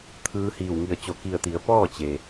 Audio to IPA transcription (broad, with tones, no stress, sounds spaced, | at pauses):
t̪ʰ ɯː˧ h iː˧˩ w ŋ i˧˩ ə̯ t͡ɕ o˧˩ k i˧˩ ə̯ t̪ i˩˧ ə̯ p ɔː˥˨ t͡ɕ e˩